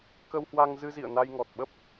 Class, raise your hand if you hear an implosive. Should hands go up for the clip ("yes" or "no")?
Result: yes